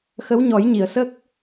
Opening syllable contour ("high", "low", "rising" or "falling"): rising